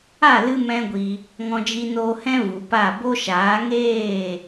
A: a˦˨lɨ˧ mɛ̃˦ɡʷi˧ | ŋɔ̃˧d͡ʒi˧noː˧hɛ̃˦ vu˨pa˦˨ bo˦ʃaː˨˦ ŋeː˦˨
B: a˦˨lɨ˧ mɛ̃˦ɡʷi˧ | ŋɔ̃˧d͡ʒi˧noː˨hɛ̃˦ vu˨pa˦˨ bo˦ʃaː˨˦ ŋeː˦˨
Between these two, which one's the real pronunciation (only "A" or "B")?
A